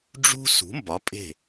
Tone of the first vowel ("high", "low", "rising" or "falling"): high